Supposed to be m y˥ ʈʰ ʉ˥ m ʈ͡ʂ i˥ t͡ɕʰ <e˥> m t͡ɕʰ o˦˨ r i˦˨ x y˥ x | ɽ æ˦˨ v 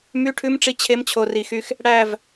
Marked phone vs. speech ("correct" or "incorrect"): correct